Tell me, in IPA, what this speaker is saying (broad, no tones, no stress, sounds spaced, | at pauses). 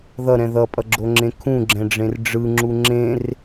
ð ʌ ɾ ɛ̃ ð ʌ pʼ ʌ ɡ͡ǁ o ŋ͡ǁ ẽ kʰ ũ ɡ͡ǁ ɛ̃ ɖ͡ʐ ẽ r ɖ͡ʐ ɯ ŋ͡ǁ u ŋ͡ǁ ẽ r